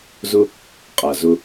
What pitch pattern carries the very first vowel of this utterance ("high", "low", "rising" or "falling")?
high